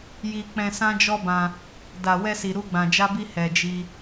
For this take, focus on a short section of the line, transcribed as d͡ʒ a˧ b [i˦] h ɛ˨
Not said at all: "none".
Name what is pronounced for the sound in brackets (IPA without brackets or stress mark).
i˧